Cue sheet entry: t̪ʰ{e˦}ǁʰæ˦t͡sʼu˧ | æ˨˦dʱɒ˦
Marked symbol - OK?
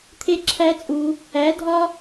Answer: yes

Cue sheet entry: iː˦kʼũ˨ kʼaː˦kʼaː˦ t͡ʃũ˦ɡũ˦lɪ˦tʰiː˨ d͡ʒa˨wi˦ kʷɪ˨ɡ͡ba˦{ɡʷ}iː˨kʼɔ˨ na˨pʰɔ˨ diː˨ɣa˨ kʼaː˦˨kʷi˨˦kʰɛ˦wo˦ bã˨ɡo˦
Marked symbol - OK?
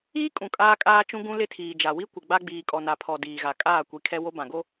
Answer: no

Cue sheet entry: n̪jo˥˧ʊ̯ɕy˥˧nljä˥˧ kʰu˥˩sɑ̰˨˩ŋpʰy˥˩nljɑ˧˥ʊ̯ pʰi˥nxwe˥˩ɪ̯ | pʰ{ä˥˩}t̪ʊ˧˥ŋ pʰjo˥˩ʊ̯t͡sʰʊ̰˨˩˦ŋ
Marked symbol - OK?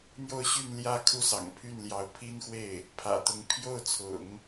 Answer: no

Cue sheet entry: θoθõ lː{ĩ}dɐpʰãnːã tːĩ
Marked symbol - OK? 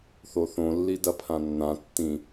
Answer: no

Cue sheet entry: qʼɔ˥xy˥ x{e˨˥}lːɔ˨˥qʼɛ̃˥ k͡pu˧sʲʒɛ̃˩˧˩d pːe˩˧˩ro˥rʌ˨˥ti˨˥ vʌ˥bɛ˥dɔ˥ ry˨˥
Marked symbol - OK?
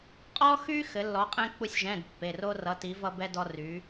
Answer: no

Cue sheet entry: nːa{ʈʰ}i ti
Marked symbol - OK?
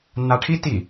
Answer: yes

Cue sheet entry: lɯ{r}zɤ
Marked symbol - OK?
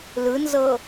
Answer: no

